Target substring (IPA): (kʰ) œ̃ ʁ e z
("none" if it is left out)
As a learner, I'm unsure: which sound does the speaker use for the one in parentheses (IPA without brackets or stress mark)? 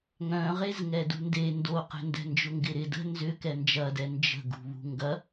ŋ